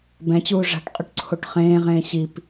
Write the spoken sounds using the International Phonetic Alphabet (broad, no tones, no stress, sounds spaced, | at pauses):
b ɛ̃ t͡ɕ uː ʐ a̤ ʈ qʼ ɵ ʈ ǀʰ o ʈ χ ẽː ʁ ẽː ɕ i p